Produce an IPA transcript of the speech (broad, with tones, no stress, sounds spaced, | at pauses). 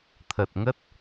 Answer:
t̪ʰ ə˨˩ t̚ ŋ ə˦˥ t̚